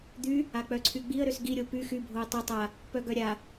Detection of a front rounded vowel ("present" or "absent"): present